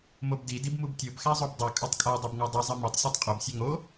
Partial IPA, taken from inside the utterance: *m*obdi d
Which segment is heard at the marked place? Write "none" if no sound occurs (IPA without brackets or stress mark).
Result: m